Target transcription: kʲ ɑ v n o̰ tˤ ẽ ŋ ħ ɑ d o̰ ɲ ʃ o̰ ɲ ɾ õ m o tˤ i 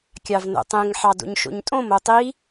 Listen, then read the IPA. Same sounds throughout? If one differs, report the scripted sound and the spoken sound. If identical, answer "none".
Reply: ɾ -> tʼ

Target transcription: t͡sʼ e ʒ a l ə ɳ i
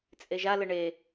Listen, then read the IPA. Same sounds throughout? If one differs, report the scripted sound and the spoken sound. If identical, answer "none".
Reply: i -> e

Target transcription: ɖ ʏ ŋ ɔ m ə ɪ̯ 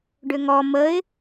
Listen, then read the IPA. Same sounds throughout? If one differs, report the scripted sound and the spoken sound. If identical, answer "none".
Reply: none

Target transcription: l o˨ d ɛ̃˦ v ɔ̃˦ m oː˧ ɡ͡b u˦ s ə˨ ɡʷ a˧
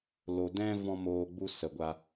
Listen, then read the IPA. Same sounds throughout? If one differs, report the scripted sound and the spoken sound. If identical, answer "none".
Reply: none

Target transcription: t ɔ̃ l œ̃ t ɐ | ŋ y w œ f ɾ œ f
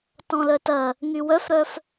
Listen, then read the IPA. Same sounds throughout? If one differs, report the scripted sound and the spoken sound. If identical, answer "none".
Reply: œ̃ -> œ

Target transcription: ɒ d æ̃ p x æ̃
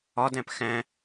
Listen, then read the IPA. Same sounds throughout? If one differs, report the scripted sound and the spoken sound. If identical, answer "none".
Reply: none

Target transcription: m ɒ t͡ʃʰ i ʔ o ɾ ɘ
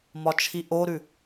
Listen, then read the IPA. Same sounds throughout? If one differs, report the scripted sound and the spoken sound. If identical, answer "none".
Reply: ɘ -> ʉ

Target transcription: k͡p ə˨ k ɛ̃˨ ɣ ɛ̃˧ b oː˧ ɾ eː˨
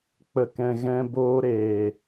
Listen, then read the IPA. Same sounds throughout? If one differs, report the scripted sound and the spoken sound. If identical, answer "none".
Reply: none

